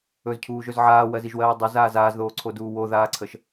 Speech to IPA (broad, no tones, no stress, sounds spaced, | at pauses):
ɵ z cʰ uː ʒ ɵ z ʕ aː w ɜ z i ʒ w ɜː dˤ ɵ z aː z aː z ð oː ǀʰ o d uː w o ð aː ǀʰ ə ʃ